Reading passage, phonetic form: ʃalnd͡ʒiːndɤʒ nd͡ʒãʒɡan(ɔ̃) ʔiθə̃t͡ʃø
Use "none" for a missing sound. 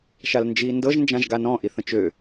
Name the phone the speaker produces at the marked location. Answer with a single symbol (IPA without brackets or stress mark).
ɔ̃